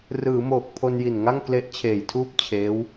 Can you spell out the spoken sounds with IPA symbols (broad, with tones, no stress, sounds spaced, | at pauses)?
r ɯː˩˦ m oː˨˩ k̚ pʰ o˧ n j i˨˩ n ŋ a˥˩ ŋ k l e˦˥ ʔ t͡ɕʰ eː˨˩ j tʰ uː˥˩ p̚ t͡ɕʰ eː˦˥ w